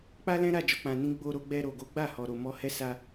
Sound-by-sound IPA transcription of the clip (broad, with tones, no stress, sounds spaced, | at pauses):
k͡p a˦ l ɛ̃˦ ɾ a˦˨ d͡ʒ ɔ˧ k͡p ã˧ n ĩ˦ ɡ͡b o˧ ɾ o˧ ɡ͡b ɛ˧ ɾ o˨ ɡ o˨˦ ɡ͡b a˦˨ h ɔ˨ ɾ o˨ m ɔ˧ h ɛ˦ s a˧